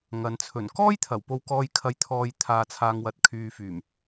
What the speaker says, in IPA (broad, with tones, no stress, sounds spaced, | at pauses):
ŋ ɐ˨ n t͡sʰ ɵ˨˩ n k ɔː˥ j t̪ʰ ɐ˨˩ w p o˧ w k ɔː˧ j kʰ ɐ˨ j t̪ʰ ɔː˨ j t̪ʰ aː˨ t͡sʰ aː˨ ŋ w ɐ˨ t̚ kʰ yː˨ f yː˨˩ m